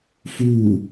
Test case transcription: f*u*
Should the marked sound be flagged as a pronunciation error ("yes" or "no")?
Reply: no